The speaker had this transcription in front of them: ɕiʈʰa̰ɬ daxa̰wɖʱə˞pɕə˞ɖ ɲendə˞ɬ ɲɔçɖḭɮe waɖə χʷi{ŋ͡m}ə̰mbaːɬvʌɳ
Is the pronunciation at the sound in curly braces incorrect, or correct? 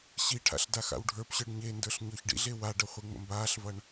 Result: correct